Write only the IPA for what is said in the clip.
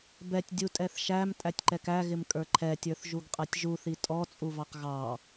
bɛtʲ dʲutʼɛθʃæm tʼætʲǃɛkæɣɪm kʼə˞ǃʰɛtʲə˞θ ʒuɡqʼɛtʲʒuθi tʼɔt͡sʼuvɑq ɣɑ

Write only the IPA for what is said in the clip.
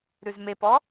ɾʉzmepɔ

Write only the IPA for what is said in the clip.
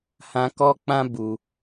hã˧kɔ˦k͡pã˦ bu˧

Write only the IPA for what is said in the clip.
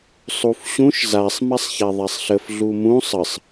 sˤufɕũʃ zasˤ masˤçaðˤasˤɬəf ɮumũ sˤəsˤ

